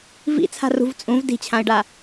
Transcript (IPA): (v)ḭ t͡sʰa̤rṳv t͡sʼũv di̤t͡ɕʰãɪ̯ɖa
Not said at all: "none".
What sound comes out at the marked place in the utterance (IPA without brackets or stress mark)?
v